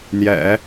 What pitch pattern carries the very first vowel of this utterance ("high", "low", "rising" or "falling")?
low